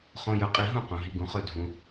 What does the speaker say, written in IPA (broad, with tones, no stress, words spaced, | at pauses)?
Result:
χõ˨jɵ˨qʼi˨ ɦũ˥˨qõ˨ɦi˨˦ɡũ˨˦ χɵ˥˨ dʱũ˨